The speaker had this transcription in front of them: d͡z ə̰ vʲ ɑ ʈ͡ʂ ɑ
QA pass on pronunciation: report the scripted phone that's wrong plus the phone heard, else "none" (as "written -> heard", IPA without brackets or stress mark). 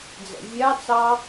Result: ʈ͡ʂ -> t͡s